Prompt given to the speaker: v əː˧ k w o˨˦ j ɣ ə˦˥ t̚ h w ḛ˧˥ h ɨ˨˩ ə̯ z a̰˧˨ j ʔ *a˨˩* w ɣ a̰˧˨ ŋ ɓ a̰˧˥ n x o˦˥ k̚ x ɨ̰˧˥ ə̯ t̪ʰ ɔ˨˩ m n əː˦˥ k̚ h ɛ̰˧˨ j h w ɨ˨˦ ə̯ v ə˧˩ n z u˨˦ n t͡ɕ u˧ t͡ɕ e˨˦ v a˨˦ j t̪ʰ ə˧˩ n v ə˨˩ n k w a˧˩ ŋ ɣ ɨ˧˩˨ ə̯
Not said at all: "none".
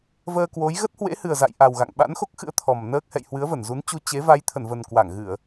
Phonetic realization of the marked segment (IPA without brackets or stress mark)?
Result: a˨˩